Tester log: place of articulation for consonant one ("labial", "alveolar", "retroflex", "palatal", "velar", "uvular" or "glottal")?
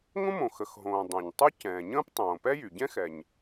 velar